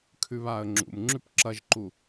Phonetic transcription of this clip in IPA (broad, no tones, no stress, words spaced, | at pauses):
kʰʉβaːə̯ŋ͡ǁṵm ŋ͡ǁʉpǁɐʒǃu